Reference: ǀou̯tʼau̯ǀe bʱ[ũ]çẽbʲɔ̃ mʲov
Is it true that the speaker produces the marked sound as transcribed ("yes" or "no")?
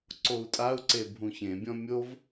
yes